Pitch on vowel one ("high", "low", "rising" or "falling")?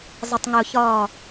low